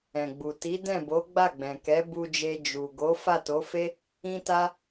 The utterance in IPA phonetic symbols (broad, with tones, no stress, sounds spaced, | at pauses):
ɛ̃˨ ɡ͡b u˨ t i˨˦ d ɛ̃˦˨ b o˨˦ ɡ͡b a˦˨ ɡ͡b ɛ̃˨ k ɛ˨˦ b u˧ d͡ʒ e˧ d͡ʒ u˨ ɡ o˨˦ f a˦˨ t o˨˦ f e˦ | ĩ˦ t a˦